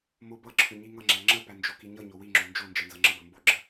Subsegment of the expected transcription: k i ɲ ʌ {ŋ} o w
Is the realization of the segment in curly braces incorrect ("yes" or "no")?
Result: yes